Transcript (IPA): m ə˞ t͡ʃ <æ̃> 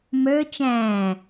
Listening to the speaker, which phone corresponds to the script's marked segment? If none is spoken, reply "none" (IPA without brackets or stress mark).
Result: æ̃ː